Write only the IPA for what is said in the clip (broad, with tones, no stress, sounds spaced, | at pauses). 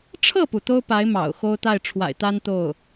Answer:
ʈ͡ʂʰ ɤ˥˩ p u˩ t̪ o˥ ʊ̯ p a˧˥ ɪ̯ m ɑ̰˨˩ ʊ̯ x o˥ ʊ̯ t̪ a˥˩ ɪ̯ ʈ͡ʂʰ w a̰˨˩ ɪ̯ t̪ a˥ n t̪ o˥˩ ʊ̯